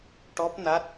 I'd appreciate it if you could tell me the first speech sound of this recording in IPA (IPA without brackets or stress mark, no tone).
ʈ